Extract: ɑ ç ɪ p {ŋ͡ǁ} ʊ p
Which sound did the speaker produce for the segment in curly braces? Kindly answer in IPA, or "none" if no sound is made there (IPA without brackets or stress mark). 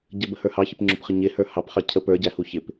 ŋ͡ǁ